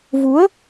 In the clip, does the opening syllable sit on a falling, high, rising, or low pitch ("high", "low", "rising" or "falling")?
rising